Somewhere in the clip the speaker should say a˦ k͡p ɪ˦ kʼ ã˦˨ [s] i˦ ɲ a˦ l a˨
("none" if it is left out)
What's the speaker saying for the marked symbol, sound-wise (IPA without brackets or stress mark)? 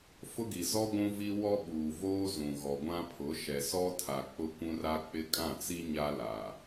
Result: t͡s